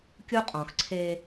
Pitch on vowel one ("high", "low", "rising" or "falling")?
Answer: high